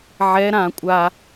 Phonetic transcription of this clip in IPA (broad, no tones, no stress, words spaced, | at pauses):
ʕɛ ɾã kʷʼa